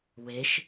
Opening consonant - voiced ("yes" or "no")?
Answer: yes